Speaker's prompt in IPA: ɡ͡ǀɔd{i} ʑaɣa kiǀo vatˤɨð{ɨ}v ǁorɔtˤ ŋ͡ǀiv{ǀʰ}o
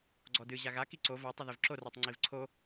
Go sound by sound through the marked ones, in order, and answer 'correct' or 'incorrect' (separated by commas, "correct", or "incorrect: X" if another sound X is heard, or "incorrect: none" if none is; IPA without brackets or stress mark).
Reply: incorrect: ɨ, incorrect: i, correct